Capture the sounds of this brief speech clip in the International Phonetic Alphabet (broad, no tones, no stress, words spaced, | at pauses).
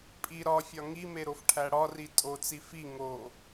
pʼi ɾɒ fʲɒŋime ɾofʈʰæɽɒri tʼot͡si fi ŋo